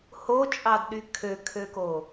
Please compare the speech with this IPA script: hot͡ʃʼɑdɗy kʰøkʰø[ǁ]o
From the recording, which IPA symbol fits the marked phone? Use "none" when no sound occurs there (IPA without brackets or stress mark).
k